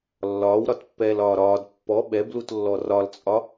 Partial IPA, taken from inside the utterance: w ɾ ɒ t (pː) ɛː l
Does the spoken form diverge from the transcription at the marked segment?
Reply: no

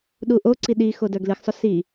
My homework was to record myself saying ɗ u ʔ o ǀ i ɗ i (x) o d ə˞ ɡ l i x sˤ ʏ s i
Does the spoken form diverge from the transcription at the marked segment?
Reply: no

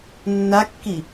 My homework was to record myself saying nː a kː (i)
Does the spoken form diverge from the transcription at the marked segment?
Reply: no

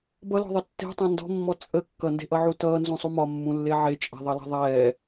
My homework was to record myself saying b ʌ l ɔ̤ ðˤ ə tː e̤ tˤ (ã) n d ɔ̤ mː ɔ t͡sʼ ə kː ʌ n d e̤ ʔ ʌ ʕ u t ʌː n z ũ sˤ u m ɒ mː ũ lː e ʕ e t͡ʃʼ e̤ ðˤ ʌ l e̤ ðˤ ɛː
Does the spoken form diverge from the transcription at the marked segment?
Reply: no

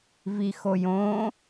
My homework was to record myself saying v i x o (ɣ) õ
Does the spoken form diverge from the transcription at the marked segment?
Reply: yes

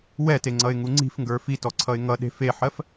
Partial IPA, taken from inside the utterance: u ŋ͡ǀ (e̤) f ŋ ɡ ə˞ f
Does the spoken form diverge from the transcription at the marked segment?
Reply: yes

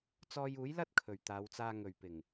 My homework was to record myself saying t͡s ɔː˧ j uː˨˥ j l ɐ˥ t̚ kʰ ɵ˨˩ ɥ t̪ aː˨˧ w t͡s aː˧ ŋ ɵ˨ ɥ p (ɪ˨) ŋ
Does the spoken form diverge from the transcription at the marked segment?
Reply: yes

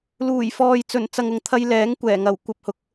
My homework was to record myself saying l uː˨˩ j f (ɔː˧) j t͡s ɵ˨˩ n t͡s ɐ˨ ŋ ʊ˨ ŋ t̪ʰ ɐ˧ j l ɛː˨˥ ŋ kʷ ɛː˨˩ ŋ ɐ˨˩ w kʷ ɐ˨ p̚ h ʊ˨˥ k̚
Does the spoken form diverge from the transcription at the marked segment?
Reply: yes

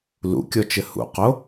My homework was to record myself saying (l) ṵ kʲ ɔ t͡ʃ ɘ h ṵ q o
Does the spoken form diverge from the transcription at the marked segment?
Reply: no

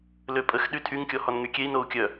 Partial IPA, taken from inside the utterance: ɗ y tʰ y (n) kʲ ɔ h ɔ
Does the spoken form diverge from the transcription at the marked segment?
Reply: yes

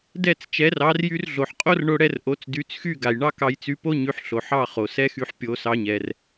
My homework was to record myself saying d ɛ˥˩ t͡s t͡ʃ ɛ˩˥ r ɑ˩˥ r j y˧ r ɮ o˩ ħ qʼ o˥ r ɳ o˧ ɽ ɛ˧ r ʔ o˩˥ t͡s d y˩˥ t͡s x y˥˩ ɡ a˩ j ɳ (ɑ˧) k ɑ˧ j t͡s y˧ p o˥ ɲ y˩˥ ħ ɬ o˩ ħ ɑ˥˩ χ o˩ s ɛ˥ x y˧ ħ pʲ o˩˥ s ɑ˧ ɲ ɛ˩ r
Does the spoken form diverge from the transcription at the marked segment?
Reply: yes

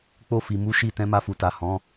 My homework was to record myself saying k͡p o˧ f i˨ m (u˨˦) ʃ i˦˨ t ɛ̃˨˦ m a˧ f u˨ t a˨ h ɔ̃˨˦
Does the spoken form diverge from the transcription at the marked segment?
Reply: no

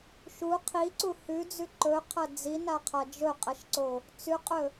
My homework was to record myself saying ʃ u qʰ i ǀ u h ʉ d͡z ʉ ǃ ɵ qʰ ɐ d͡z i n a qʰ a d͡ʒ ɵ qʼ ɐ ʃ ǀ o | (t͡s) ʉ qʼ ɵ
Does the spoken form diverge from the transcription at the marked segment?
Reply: no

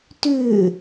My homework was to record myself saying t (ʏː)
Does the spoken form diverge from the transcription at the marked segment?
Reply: no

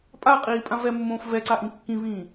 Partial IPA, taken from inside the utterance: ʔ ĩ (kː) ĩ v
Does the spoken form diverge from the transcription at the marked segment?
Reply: no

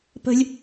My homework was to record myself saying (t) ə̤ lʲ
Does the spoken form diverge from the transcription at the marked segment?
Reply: yes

